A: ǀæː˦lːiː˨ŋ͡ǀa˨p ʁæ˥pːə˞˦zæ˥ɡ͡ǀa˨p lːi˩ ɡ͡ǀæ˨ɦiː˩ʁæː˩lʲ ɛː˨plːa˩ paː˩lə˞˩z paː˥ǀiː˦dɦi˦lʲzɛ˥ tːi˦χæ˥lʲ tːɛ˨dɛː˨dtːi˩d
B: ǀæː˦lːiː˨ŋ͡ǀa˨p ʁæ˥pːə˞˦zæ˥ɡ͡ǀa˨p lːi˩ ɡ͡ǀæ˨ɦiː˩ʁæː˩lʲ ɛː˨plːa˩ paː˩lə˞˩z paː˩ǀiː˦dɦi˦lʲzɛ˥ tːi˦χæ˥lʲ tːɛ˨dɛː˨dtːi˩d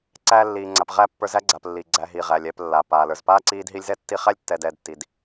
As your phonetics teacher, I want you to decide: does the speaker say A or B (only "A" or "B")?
A